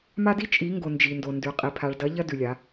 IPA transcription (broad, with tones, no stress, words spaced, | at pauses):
ma˦di˦t͡ʃʼi˨˦ŋɡo˨ nd͡ʒi˨ndo˨ndʉ˨ qʼi˨pʰa˨ɭdɐ˨˦ ʎɐ˦dʉ˨lʲa˨˦